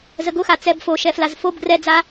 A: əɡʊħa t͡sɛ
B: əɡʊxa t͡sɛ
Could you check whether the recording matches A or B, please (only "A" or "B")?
B